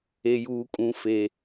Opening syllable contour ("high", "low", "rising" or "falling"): low